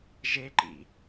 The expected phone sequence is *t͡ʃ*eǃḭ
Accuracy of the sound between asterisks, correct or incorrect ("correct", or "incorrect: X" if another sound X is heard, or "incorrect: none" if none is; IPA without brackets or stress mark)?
incorrect: ʒ